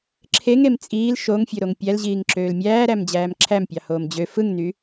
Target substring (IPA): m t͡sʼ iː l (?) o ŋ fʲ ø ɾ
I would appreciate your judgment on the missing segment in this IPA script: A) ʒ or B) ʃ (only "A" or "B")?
B